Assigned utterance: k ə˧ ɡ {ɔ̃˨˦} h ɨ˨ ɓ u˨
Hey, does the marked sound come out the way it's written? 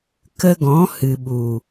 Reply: yes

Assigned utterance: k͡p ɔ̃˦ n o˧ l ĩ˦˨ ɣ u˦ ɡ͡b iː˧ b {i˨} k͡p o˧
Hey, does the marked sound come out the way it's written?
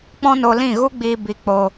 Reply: no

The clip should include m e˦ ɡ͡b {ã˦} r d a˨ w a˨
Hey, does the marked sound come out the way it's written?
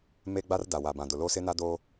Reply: no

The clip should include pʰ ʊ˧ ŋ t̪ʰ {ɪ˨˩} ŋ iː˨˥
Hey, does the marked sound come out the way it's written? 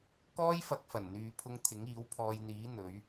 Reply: no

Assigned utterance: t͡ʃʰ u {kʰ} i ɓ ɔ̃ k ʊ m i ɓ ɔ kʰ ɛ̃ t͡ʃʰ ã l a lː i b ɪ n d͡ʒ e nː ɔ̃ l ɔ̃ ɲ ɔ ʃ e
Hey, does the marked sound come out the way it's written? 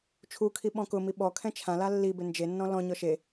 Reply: yes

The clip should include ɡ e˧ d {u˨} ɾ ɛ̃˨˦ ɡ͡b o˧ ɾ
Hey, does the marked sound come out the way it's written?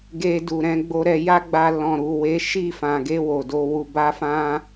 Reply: yes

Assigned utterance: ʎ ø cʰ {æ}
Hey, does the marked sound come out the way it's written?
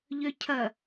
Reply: no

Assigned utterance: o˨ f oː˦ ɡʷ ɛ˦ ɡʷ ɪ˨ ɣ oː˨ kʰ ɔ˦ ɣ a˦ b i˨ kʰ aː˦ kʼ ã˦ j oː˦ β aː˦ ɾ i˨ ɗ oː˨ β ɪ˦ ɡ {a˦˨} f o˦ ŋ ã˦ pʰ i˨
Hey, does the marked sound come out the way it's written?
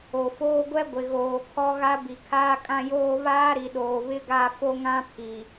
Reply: yes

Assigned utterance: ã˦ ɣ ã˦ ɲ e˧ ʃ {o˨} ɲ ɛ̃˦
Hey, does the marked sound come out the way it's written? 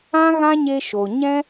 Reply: yes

